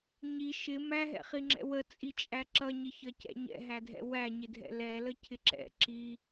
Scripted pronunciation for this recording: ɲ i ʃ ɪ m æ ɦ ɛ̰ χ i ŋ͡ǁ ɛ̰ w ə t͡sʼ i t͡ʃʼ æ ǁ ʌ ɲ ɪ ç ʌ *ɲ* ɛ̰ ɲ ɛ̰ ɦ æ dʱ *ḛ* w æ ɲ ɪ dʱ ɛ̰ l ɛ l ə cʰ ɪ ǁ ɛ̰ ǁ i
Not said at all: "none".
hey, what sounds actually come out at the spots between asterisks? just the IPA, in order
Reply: c, ɛ̰

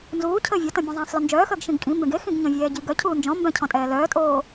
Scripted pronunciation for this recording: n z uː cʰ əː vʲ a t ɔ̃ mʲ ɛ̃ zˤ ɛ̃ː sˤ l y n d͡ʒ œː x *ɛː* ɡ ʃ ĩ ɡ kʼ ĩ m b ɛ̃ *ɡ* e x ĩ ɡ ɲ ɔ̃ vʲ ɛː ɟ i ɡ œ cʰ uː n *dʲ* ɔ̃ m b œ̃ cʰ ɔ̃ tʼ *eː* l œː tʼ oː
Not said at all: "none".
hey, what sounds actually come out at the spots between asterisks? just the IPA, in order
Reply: əː, ɡ, d͡ʒ, ɛː

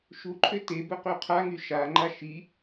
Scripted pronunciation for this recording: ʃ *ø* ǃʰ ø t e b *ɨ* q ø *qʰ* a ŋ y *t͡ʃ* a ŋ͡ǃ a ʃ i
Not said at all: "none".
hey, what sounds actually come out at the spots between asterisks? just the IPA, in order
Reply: u, ə, qʰ, ʃ

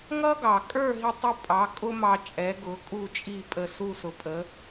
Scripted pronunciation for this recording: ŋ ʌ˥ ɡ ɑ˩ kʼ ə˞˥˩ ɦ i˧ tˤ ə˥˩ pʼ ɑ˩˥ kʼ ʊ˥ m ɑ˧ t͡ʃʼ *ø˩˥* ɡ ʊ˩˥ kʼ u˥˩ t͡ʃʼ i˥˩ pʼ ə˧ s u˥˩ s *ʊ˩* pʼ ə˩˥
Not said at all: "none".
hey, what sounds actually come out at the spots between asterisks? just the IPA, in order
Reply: ɛ˩˥, ʊ˩

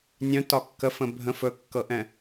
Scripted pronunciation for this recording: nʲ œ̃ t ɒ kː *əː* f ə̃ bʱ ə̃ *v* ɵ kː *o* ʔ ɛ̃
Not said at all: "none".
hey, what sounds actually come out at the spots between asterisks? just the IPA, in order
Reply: ə, f, ɤ

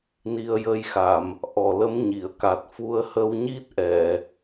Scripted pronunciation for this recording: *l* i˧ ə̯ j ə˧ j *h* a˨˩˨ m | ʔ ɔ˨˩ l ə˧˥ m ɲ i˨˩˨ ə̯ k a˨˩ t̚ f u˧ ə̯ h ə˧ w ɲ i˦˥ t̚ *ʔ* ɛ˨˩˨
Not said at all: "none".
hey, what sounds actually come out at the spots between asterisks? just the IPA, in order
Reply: n, x, ʔ

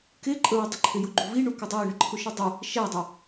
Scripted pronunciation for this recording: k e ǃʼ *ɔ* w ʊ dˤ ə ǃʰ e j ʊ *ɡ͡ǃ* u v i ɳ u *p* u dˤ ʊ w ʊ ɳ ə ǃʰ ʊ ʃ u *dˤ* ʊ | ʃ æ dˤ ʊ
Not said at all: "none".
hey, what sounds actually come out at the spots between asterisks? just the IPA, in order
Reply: ə, ɡ͡ǃ, k, dˤ

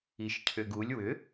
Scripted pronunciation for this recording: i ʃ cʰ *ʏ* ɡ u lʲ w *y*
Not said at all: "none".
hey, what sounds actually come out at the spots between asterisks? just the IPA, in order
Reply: ʏ, ʏ

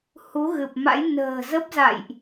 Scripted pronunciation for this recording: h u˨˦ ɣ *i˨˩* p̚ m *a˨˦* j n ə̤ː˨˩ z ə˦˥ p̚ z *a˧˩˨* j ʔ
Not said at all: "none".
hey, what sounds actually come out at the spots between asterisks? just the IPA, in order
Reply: ɨ˨˩, a̰˧˥, a̰˧˨

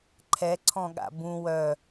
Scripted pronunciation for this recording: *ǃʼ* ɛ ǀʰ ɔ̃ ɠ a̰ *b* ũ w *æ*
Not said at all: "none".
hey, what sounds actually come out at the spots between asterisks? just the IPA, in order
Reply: ǃʰ, b, œ

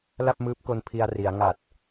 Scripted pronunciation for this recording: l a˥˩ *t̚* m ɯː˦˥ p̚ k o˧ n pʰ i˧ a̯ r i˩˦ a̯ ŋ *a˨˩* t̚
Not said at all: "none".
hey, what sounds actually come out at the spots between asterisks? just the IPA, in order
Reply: p̚, a˨˩

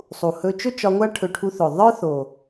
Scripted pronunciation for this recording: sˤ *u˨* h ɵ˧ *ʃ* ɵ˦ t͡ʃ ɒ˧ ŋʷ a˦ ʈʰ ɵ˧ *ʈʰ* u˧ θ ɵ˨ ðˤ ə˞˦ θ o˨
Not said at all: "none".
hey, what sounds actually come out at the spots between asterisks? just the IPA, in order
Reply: u˨, t͡ʃ, ʈʰ

